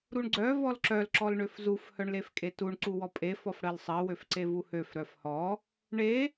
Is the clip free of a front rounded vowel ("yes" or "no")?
no